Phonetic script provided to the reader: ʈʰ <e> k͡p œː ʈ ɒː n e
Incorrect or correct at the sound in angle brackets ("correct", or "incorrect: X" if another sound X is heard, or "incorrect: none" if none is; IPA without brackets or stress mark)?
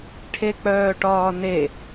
correct